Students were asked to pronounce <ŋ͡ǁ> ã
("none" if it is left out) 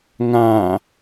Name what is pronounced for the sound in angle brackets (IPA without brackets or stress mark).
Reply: ŋ